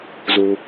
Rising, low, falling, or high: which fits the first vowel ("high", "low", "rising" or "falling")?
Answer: low